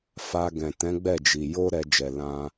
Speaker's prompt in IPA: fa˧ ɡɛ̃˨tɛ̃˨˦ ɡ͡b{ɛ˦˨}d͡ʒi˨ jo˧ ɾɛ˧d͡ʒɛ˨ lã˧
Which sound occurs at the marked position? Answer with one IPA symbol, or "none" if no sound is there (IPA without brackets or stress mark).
ɛ˦˨